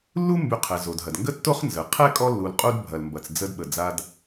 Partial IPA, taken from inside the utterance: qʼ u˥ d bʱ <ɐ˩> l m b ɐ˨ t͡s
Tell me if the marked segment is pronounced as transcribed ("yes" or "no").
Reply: no